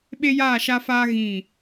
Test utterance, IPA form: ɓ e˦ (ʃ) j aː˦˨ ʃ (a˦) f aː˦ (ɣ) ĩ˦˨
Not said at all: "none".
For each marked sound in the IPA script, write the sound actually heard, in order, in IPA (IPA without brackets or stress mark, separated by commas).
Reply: none, a˦, ɣ